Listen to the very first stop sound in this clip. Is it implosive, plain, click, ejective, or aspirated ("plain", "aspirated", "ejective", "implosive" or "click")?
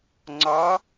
click